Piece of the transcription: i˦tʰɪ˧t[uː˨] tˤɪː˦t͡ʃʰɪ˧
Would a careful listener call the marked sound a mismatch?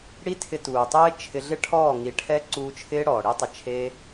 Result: no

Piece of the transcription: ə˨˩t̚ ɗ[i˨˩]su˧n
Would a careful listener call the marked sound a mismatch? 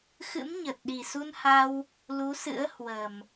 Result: no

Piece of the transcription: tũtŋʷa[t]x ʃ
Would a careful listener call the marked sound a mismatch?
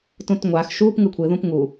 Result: yes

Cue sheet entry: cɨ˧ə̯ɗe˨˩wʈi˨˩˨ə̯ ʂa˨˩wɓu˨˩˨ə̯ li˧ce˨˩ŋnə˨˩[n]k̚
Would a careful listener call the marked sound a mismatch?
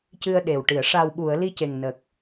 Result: yes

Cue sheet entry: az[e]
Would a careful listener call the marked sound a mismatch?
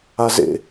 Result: yes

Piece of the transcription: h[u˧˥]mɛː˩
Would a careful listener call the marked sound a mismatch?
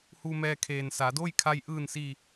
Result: yes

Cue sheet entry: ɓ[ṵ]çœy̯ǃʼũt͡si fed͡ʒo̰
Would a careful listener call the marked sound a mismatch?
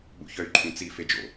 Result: no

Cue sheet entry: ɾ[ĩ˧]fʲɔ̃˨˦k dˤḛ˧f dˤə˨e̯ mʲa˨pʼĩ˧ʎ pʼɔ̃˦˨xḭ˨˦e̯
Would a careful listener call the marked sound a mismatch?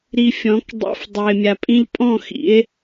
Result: yes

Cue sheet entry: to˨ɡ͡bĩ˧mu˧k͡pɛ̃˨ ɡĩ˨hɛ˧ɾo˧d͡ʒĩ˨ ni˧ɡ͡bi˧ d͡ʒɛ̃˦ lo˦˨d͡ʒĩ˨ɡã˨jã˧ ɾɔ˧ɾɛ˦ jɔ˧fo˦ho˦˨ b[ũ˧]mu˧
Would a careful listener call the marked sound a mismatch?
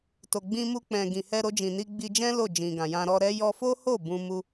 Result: no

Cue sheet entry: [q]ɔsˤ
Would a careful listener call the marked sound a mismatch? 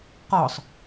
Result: no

